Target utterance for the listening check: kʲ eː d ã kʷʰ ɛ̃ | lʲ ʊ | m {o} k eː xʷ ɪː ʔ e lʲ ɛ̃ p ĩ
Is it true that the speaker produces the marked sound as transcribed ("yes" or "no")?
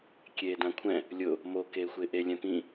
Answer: yes